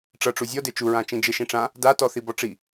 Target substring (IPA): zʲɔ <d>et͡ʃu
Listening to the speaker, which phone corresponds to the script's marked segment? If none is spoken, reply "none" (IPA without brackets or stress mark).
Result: d